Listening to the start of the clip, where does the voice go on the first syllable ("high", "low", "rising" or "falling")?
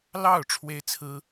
falling